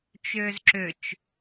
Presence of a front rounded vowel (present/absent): present